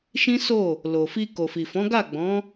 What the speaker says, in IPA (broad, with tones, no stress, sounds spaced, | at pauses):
ʃ ĩ˦ s o˦˨ | l o˨ f i˧ k o˨ f i˨ f ɔ̃˨˦ ɡ a˦˨ ɡ͡b ɔ̃˨˦